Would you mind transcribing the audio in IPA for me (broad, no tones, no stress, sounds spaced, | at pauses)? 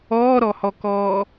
ɔː ɾ ɔ h ɔ k ɔː